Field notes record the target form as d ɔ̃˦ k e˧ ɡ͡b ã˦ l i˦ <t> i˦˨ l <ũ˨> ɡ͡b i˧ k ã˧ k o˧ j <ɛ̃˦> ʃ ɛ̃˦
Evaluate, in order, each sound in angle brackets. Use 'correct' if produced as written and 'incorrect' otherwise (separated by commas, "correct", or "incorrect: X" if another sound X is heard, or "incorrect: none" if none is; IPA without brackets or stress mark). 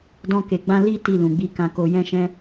correct, correct, correct